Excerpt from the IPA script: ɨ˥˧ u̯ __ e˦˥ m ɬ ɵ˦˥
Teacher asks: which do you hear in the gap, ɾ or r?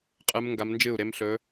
ɾ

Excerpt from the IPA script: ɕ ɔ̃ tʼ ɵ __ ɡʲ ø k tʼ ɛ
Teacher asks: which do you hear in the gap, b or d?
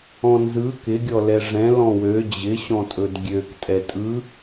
d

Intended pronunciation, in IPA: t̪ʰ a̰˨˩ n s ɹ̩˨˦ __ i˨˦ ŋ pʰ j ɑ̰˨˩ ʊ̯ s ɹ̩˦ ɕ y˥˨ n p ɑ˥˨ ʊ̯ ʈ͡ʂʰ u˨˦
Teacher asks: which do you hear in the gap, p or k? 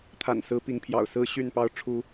p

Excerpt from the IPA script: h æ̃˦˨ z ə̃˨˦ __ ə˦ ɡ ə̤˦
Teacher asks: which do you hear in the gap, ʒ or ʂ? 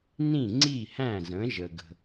ʒ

